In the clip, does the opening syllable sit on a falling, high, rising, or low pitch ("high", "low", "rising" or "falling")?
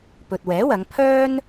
low